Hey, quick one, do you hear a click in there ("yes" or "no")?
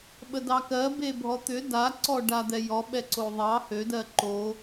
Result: yes